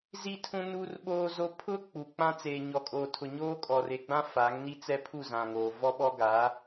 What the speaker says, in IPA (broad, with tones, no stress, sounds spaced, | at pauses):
z i˦ tʰ ũ˦ n uː˦ r ɓ oː˦ z o˦ pʰ ʊ˦ k͡p u˨ k͡p ã˦ t͡s eː˨ ɲ ɔ˨ kʼ oː˨ tʰ ʊ˨ ɲ oː˦ kʼ ɔ˨ r e˨ ɡ͡b ã˦ f a˨˦ ŋ n i˦ t͡s ɛ˦ pʰ u˦˨ z ã˨ ŋ oː˨ v ɔ˦ ɓ ɔ˦ ɡ aː˨˦